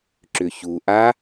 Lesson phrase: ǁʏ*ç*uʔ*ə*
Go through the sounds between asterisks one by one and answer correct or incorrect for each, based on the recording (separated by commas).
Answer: correct, incorrect